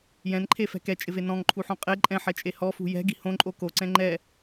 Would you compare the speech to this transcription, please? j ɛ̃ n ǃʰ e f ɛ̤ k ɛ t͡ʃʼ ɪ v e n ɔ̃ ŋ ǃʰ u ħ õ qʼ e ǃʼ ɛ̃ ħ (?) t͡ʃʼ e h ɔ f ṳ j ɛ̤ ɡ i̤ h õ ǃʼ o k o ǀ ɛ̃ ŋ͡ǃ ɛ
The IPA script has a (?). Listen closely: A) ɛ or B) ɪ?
A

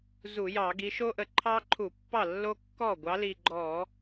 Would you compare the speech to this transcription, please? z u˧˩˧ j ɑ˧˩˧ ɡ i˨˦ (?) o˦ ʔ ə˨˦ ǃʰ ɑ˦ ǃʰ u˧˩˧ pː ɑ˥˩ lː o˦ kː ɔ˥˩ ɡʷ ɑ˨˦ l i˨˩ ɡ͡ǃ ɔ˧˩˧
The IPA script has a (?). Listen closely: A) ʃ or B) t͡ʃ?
A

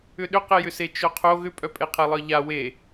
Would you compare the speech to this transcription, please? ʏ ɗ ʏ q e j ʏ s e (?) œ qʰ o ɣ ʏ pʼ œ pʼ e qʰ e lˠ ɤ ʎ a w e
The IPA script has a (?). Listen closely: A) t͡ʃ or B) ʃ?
A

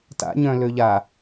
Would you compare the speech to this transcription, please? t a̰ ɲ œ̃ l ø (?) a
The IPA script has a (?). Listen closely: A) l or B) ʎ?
B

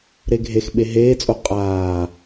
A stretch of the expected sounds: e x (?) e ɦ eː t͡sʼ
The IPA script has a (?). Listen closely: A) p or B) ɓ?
B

